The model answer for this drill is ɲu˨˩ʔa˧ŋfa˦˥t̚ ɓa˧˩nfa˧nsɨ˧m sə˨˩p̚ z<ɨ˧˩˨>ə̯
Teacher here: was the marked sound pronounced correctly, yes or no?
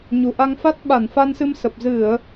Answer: yes